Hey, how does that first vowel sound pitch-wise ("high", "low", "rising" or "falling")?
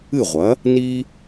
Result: falling